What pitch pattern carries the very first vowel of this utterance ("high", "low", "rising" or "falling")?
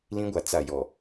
high